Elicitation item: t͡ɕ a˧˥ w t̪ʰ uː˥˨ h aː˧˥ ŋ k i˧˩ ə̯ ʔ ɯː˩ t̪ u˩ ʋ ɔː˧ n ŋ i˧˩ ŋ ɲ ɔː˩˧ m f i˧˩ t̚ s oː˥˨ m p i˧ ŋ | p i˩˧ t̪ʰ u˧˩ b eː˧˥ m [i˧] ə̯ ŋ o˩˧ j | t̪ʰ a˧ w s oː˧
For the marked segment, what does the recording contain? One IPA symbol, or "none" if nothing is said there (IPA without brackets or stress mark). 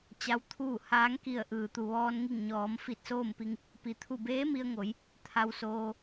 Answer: i˧